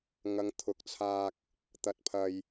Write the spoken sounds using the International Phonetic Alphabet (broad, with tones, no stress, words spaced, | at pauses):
ŋɐ˨˧ŋt̪ʰʊ˨˥k̚t͡sʰaː˧k̚ | t̪ɐ˧t̚pʰɐ˧j